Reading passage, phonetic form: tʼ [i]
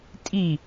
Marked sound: correct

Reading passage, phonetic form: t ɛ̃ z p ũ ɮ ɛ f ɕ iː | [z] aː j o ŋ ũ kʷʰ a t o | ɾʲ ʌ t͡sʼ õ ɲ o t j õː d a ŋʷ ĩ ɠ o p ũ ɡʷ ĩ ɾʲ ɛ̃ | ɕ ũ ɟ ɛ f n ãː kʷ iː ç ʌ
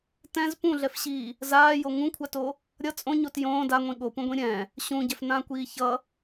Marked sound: correct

